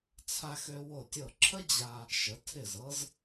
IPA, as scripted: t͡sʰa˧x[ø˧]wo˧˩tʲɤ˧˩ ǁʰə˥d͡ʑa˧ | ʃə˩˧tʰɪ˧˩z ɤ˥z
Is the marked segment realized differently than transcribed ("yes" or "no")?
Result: no